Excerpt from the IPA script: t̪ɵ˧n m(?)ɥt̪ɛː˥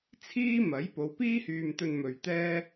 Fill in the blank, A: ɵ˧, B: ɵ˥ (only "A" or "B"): A